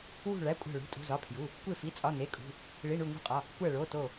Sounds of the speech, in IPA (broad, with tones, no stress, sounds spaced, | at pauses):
w ṳ˧˩ ɭ æ˩˧˩ kʷʼ æ̤˧˩ ɭ ṳ˩˧˩ tʼ ṳ˩˧˩ z ɒ˩˧˩ pʰ j u˩˧˩ | kʷ e˧˩ f i˩˧˩ t͡sʼ ɒ˩˧˩ n e˩˧˩ kʼ ṳ˩˧˩ | ɭ i˩˧˩ ɳ u˧˩ ŋ ṳ˧˩ qʼ ɒ˩˧˩ | kʷ æ˧˩ ɭ o˩˧˩ t o˧˩